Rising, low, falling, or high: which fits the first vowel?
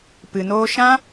low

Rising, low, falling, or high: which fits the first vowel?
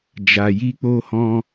low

